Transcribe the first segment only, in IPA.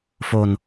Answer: f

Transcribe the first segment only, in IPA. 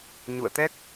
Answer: ɲ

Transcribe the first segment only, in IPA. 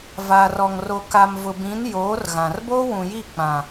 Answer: v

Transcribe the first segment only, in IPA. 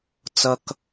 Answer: t͡s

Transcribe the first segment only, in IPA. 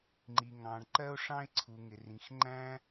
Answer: ŋ͡ǃ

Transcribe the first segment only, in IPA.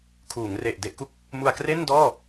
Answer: kʰ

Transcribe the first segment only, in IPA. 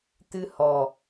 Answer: t̪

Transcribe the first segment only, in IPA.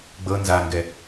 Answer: ɡ͡b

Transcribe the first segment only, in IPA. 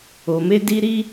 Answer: o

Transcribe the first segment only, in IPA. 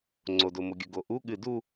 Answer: ŋ͡ǀ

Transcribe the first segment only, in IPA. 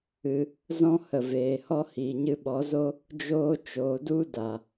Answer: ɨ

